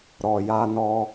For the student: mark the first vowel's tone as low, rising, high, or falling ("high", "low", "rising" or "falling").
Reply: low